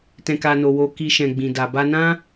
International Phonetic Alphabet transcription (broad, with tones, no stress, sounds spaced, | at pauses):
t ɛ̃˨ k a˨ n o˨ w o˨ k i˨ ʃ ɛ̃˨ ɡ͡b ĩ˨ d a˨ b a˧ n ã˦